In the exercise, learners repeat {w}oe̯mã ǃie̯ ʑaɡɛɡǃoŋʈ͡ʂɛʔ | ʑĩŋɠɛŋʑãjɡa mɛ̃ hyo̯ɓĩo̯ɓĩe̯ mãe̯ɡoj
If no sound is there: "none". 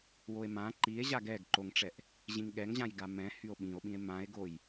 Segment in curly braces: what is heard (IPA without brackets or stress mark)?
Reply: w